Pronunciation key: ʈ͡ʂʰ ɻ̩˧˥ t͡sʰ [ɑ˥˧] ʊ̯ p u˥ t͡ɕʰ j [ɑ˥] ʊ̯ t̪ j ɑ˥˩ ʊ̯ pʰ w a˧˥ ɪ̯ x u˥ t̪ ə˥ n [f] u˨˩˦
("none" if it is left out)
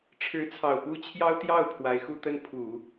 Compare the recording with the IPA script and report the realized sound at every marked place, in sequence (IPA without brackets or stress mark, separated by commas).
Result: ɑ˨˩, ɑ˥, pʰ